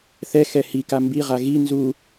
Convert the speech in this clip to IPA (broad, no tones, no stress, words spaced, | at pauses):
θɛ xɛhika mbiʁa ɣi nzu